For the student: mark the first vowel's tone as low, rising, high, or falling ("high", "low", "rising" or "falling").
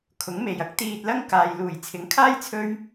rising